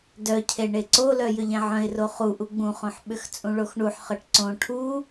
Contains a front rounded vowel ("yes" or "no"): yes